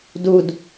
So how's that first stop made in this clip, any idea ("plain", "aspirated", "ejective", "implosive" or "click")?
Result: plain